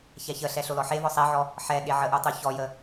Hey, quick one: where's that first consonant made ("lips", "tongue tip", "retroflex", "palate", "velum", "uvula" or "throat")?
palate